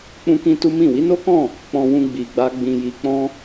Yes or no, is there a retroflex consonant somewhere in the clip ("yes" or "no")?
no